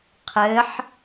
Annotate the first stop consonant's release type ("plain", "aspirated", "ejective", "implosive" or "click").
aspirated